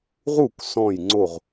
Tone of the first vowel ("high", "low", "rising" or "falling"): falling